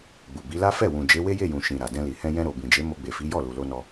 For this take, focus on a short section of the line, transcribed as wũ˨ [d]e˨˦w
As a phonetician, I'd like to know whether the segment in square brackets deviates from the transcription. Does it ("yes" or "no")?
yes